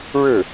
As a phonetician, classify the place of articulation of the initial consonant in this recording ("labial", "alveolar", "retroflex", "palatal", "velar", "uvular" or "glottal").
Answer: retroflex